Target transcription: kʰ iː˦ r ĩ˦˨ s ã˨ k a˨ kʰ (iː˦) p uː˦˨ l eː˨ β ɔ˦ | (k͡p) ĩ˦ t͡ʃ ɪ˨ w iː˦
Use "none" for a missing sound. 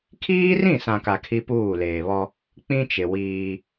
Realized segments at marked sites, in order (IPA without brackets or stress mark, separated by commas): i˦, k͡p